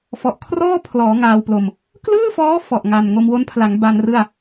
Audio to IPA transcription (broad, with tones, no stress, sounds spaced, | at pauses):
f ɔ˨˩ ʔ kʰ r ɔː˥˩ pʰ l ɔː˩˦ ŋ aː˧ w p l o˧ m | k l ɯː˥˩ f ɔː˦˥ f ɔ˨˩ ʔ ŋ a˨˩ n ŋ o˧ m w o˦˥ n pʰ l a˩˦ ŋ b a˧ n r ɯ˥˩ a̯